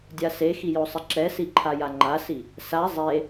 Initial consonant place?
alveolar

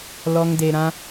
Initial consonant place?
alveolar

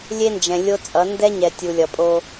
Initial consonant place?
alveolar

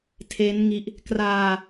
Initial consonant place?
alveolar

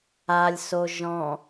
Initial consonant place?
alveolar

